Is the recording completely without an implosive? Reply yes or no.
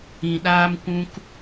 no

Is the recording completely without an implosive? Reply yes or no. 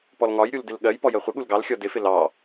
no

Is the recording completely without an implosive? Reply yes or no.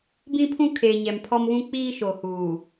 yes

